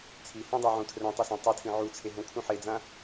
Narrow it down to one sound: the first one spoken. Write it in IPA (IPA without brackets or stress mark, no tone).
t͡sʰ